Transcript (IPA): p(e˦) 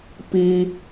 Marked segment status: incorrect: i˦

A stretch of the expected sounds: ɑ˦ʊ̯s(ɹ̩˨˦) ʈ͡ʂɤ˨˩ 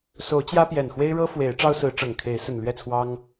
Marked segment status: correct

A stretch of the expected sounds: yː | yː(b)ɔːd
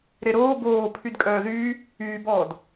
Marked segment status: correct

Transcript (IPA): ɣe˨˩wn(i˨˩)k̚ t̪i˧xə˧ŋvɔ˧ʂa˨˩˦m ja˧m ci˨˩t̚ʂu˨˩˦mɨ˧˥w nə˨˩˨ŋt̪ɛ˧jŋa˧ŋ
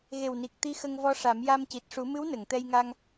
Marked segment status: correct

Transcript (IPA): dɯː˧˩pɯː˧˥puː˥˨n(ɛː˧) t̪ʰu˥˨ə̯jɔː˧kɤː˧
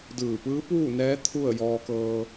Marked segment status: incorrect: ɛː˧˥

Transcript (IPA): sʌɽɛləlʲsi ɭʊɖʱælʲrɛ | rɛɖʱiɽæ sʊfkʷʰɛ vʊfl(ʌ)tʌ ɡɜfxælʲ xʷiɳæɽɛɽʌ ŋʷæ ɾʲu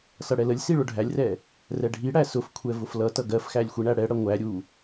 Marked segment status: correct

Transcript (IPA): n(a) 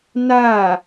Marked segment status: correct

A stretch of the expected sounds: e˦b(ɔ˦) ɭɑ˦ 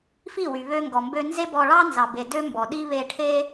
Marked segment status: incorrect: ɔ˧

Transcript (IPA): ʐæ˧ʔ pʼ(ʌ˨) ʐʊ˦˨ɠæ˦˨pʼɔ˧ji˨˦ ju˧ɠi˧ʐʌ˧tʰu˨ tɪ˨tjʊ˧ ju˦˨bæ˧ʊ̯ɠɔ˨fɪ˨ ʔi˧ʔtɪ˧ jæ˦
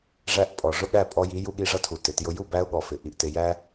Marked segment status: incorrect: ɔ˨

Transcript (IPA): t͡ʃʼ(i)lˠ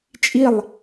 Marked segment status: correct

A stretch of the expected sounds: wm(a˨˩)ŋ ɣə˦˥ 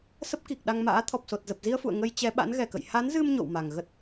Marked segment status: correct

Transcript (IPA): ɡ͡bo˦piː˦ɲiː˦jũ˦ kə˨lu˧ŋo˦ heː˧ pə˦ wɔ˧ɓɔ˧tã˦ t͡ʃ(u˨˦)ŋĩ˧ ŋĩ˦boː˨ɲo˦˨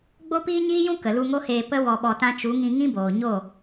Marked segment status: correct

